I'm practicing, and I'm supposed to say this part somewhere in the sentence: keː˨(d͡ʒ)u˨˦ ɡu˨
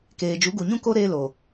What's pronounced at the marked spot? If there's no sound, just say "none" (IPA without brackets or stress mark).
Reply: d͡ʒ